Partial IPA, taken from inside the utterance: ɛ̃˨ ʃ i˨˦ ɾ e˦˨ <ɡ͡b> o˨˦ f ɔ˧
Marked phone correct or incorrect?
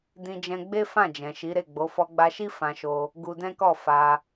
correct